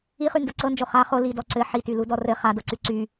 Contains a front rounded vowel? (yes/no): yes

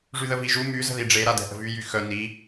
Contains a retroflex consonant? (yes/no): yes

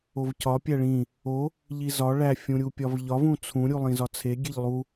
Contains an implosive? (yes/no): no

